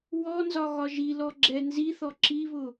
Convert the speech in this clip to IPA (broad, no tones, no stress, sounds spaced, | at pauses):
w ɔ n z ɒ ɣ ɒ ʒ i l ɔ ɡ͡ǁ ɛ n z i θ ɔ ǁ i β ʊ